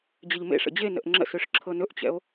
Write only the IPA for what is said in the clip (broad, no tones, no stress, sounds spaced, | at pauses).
d͡ʑ ə ʎ m ḛ ʂ ə̰ d͡ʑ e n ə̰ ʔ ŋ͡ǁ ə̰ s ø ʂ ǁʰ ɤ n ɵ ʔ t͡ɕ ɛ̰ o̯